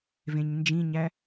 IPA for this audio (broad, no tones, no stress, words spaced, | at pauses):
vẽɲnd͡ʒĩɲæ